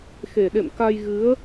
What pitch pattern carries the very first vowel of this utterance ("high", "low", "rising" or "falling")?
low